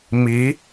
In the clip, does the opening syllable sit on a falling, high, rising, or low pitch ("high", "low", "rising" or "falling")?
rising